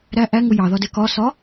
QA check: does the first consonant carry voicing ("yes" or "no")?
yes